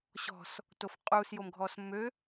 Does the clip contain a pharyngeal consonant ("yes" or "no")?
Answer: no